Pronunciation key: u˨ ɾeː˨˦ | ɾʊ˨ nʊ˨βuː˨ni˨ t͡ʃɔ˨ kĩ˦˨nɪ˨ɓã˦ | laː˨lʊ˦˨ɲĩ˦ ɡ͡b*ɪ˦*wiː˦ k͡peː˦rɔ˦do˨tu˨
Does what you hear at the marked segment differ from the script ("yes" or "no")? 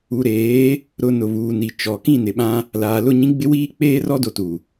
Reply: no